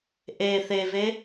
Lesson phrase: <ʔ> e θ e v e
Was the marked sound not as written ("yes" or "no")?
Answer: no